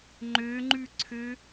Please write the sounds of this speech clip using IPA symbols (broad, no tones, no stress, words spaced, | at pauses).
ŋ͡ǃøŋ͡ǃʉǀʰø